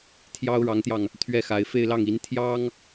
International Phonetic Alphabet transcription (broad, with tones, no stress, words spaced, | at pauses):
t̪ʰjɑ˥ʊ̯ɻɑ˧˥ŋt̪jɑ˧ŋ | t̪ʰɥɛ˥˩xa˧˥ɪ̯ fe˥˧ɪ̯lɑ˥˩ŋ i˧˥n t̪ʰjɑ˥ŋ